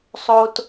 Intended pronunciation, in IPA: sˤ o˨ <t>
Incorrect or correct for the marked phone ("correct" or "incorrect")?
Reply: correct